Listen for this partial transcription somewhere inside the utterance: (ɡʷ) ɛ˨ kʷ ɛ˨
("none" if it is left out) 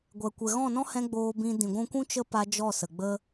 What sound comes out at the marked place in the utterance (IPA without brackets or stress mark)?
ɡʷ